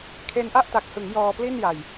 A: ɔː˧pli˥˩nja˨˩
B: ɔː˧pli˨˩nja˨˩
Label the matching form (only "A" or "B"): A